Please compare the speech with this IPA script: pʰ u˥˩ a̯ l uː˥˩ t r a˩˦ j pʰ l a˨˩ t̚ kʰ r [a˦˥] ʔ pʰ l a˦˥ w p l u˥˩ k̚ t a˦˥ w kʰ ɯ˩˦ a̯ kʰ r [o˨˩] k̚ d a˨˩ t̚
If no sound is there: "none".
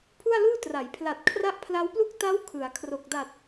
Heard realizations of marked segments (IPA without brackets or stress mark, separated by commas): a˥˩, o˨˩